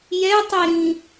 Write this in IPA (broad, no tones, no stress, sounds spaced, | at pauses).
j ɛ tˤ i ɾ ĩ